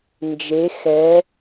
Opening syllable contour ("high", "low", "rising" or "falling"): rising